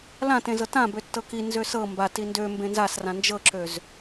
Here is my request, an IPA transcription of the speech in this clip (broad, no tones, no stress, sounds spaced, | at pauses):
l ã t ẽ z ɤ t ã b ø tː ɤ k i n z ø s ɤ m b a t i n d ø m b ẽ n z a s r ã n d͡ʒ ɤ ǁ ø z